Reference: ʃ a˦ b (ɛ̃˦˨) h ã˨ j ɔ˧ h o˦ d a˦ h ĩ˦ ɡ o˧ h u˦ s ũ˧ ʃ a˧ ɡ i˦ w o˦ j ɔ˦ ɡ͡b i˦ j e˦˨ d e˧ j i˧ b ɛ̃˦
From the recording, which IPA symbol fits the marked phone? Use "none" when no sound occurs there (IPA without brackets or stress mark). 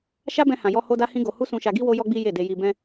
ɛ̃˧